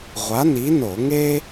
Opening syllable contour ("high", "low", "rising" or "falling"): rising